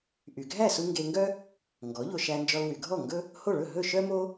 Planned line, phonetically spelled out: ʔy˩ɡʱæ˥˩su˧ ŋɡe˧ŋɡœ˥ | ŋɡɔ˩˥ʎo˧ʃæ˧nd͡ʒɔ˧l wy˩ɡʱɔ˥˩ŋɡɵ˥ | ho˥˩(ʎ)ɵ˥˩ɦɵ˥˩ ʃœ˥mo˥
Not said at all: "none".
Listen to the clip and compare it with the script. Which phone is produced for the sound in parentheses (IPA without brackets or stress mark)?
ɭ